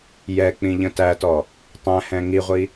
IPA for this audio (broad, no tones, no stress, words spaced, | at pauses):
jɛk͡pĩ ʎə̃tætɔ | tˤæ̃hɛ̃ ŋiʁʷi